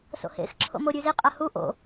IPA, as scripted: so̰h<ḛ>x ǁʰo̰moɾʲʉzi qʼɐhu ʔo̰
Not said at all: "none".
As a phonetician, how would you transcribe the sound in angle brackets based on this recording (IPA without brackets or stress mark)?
ḛ